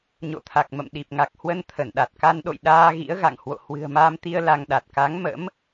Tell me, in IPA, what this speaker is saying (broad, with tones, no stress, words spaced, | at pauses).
ɲo̰˧˨t̪ʰa˨˩k̚mə̰˧˨m ɗi˨˩p̚ŋa˨˩k̚hwə˧n t̪ʰə˧˩n ɗa˨˩t̚ka˧nɗo̰˧˨j ɗaː˧ɣḭ˧˥ə̯ɣa̰˧˨ŋhwo̰˧˨ hwɨ̤˨˩ə̯maː˧mt̪i˧ə̯ la˧ŋɗa˨˩t̚ ka˨˦ŋmə̰˧˥m